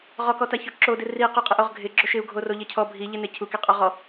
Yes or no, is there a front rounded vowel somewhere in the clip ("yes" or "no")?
no